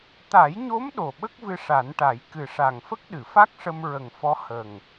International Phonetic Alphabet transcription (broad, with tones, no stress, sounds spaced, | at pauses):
t̪ a˨˩˦ j ɲ o˧˥ m ɗ o˨˩ ɓ ə˦˥ k̚ v ɨ˧ ʂ a˨˩˦ n ʈ a˨˩˦ j k ɨ˨˩ ʂ a˨˩ ŋ f ə˦˥ k̚ ɗ ɨ˨˩˨ f a˦˥ k̚ ʂ ə˧ m ɹ ə˨˩ ŋ f ɔ˧˥ h ə˨˩ ŋ